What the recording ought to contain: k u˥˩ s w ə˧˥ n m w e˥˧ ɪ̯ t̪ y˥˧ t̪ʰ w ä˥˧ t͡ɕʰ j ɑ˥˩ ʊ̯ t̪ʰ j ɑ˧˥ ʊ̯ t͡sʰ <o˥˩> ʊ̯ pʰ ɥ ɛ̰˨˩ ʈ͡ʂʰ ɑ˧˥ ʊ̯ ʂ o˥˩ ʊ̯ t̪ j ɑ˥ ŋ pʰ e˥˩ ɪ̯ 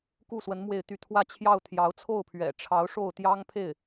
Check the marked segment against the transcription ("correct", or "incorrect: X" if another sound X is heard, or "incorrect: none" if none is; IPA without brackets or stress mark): correct